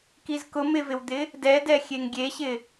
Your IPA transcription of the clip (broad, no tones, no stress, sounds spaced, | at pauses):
k i z k ʊ m ɪ v ɪ w d̪ ɪ | d ɛ d ɛ xʲ e ŋ ɡʲ e ɕ ɪ